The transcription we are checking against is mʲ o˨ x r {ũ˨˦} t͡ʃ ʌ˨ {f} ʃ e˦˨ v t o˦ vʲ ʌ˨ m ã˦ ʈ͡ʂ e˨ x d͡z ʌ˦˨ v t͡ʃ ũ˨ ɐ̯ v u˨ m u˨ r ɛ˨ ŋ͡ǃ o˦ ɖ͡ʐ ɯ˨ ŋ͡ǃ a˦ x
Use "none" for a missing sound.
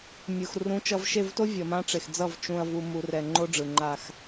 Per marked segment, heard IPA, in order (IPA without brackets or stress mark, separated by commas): ũ˨˦, v